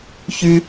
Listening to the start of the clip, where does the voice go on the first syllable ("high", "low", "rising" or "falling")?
high